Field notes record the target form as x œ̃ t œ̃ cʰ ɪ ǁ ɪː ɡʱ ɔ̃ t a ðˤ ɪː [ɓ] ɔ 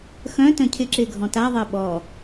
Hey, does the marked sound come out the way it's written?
yes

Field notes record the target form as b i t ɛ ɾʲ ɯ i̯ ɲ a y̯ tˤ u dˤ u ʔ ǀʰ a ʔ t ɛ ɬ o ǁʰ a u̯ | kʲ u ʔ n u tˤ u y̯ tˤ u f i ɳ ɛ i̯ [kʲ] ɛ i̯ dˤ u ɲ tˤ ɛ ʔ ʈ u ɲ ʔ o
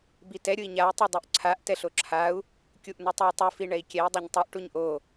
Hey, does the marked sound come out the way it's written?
yes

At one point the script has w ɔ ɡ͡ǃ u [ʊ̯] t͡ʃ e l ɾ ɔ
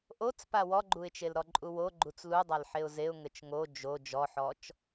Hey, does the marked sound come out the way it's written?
no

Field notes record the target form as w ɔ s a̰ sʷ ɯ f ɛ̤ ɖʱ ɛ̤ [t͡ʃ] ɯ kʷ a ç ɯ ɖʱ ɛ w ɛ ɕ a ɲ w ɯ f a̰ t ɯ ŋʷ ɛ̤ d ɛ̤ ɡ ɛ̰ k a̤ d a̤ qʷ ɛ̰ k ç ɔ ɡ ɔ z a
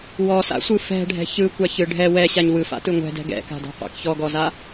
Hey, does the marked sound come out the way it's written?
no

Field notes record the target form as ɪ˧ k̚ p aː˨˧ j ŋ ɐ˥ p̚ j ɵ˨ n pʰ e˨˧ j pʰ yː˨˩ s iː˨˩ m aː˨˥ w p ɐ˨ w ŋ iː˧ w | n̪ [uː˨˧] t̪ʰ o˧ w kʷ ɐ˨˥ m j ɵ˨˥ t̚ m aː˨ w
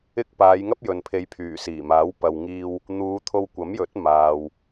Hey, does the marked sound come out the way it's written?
yes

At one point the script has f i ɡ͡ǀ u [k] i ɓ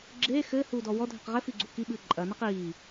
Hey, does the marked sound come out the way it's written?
yes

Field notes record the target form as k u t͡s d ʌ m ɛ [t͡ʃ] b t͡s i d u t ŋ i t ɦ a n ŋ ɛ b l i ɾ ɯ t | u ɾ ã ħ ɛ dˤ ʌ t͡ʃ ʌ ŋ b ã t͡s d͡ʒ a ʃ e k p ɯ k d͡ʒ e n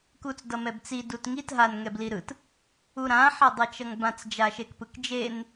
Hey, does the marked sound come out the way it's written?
no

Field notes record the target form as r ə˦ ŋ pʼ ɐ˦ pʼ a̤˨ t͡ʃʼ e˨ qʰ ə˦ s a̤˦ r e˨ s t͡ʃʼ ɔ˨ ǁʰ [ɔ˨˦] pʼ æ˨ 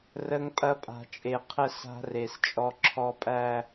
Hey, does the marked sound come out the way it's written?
no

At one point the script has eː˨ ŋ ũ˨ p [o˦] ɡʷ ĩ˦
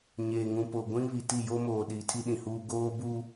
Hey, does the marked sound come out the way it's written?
no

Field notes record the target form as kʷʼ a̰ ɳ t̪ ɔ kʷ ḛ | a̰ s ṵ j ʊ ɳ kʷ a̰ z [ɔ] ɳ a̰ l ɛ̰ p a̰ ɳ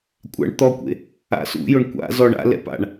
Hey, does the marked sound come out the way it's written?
yes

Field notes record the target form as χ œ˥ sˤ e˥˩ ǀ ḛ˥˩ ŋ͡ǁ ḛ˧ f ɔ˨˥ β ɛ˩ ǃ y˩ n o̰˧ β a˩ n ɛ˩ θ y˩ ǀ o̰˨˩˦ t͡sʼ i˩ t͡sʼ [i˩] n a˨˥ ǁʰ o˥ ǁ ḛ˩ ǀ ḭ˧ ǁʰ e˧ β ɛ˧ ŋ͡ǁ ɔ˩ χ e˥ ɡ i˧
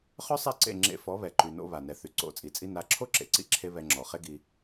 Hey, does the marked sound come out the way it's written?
no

